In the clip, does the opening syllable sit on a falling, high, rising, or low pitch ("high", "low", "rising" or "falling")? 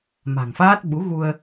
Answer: low